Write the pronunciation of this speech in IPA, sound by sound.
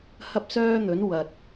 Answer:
h ɐ˥ p̚ s œː˥ n̪ ɵ˨˥ n w ɐ˨ t̚

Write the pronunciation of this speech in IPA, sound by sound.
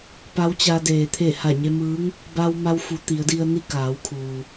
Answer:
p a˧˥ w t͡ɕ a˧ d eː˩ t̪ʰ e˧˩ h a˧˩ ɲ e˧ m ɯː˧˥ ŋ | b a˧ w m a˧ w f u˩˧ t̪ i˩˧ ə̯ d i˧ ə̯ n i˥˨ k aː˩˧ w kʰ uː˩

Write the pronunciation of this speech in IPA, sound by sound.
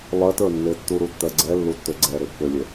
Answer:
lˠ ɜ t ə˞ nː e tː u ɾ u tː ɜ ɡ͡ǀ ɛ lː u tː ø ɡ͡ǀ ɛ ɾ e pː ø lʲ e

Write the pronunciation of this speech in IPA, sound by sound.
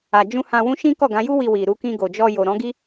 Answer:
a˨ d͡ʒ ũ˧ h ã˧ w ũ˦ ʃ ĩ˦ k ɔ˦˨ ɡ ã˨˦ j u˦ w i˧ w i˨ ɾ u˧ k ĩ˧ ɡ o˨ d͡ʒ ɔ˧ j o˨ ɾ ɔ̃˨˦ ɡ i˦

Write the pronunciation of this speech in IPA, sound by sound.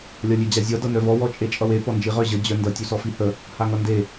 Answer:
lʲ ɒ lʲ e d͡ʑ a zʲ ʌ d ʌ n œ v ɔ w ɔ t͡ʃʼ e t͡ʃʼ ʌ w e p ɔ n d͡ʒ i ʁ œ ʑ ə d͡ʑ œ n d ʌ tʲ u s ɔ f i h ə | h a ŋ ʌ n d e

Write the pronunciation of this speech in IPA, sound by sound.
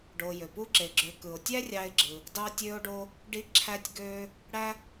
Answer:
ɖ o˨ j ø˩ p u˥ ǁ e˨ ɡ͡ǁ ø˨ k ɯ˩ o̯ tʲ æ˥ rʲ ɑ˦ e̯ ɡ͡ǁ ɯ˨ | d ɑ˦ tʲ ø˦ o̯ ɖ o˦ | ɖ i˦ ǁʰ æ˦ tʲ ɡ ø˦ | ɽ æ˦

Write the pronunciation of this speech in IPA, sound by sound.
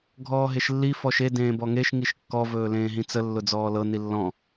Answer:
ɡʱ ɔː ɦ e ʃ lː i f ɔ ʃ e d ẽː b ɔ ŋ e ʃ ŋ i ʃ kː ɔ v ɵː l ẽː ɦ ĩ t͡s ə lː ʊ d͡z ɔː l ɤ n i lː ɔ̃

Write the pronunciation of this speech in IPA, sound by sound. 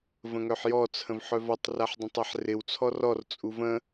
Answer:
v ə̃ ŋ œ ħ j ɔ t͡sʰ ə̃ v ħ œ v ɔ tˤ r a ħ dˤ ə̃ tˤ a ħ r ɪ w t͡sʰ ɔ r ɔ r t͡sʼ u v ə̃

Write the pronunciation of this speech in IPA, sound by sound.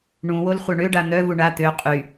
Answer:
ɳ ũ w o l χʷ œ ɳ ø ɖ a n̪ œ v u ɳ a t̪ ø qʼ y

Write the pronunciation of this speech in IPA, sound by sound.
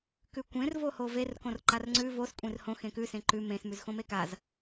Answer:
k ʉ kʷ ẽ r v o h o v e r k õ r ǃ a r ŋ͡ǀ ʉ v o s kʷʼ ẽ r h õ x ẽ k ʉ s ẽ ǃ ʉ m ẽ s m ʉ z x õ m e k a z

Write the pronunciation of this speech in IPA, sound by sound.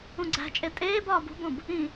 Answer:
ũ ɡ͡ǀ æ̤ t͡ʃʼ e tʼ eː b ɒː b ṳ b õ b | ĩ

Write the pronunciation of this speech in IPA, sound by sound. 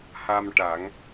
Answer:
h a˧ m ʈ a˨˩˦ ŋ

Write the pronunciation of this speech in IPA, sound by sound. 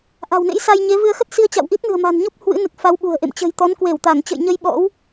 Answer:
ʔ a̤˨˩ w n ḛ˧˥ j s a˧ j ɲ e˨˦ v ɨ˧ ə̯ x ə˦˥ t̚ s i˧ ə̯ t͡ɕ a̰˧˨ w ʔ i˦˥ t̚ n ɨ̤˨˩ ə̯ m a̤˨˩ n ɲ ɔ˦˥ p̚ h w ɨ̰˧˥ n ɨ˨˩ k̚ f a˨˦ w ɓ ṳ˨˩ ə̯ ʔ ḛ˧˨ m t͡ɕ ə̤˨˩ j t̪ ɔ˨˦ n k w e˧˩ w t̪ a˧˩ ŋ t͡ɕ ə̰˧˨ j ɲ ə˧ j ɓ ɔ̰˧˥ w

